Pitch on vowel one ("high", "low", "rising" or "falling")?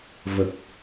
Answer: low